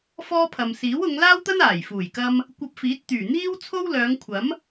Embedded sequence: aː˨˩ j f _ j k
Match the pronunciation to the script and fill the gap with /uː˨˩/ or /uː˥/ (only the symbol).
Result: uː˨˩